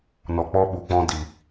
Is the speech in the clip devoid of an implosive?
no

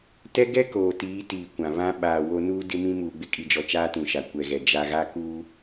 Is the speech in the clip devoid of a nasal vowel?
no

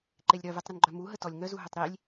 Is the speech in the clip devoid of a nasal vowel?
yes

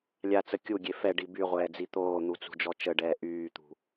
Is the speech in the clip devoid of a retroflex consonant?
no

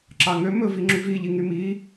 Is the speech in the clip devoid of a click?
no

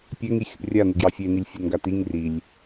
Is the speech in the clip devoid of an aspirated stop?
yes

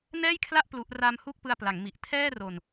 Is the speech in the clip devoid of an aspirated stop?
no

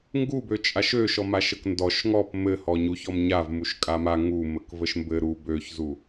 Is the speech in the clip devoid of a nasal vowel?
yes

